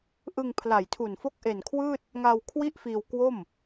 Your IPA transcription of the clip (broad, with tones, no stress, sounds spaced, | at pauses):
ʔ ɯ˧ ŋ pʰ l a˨˩ j tʰ u˨˩ n f o˦˥ k̚ ʔ e˨˩ n kʰ w ɯː˥˩ t̚ | ŋ aː˧ w kʰ w i˥˩ ʔ f iː˧ w k w o˥˩ m